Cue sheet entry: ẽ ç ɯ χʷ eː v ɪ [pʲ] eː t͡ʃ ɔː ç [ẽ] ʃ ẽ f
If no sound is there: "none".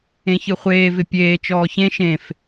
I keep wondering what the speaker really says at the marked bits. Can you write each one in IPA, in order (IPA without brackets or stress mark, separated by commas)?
pʲ, ẽ